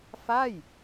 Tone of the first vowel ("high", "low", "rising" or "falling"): falling